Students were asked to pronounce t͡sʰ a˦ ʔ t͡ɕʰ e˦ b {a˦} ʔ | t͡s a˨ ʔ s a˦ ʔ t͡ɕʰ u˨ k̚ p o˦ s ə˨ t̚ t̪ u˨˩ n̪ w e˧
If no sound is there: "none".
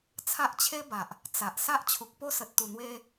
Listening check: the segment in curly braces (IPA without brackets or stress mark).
a˨